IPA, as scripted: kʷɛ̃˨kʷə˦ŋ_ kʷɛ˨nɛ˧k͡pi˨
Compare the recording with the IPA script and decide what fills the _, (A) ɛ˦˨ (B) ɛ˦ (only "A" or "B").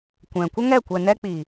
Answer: A